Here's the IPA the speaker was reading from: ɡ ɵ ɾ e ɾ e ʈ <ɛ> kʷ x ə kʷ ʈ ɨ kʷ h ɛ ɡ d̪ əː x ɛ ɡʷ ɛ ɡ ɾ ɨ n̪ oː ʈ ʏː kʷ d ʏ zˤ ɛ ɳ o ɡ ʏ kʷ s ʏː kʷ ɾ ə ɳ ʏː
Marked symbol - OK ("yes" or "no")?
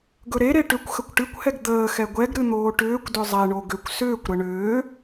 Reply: no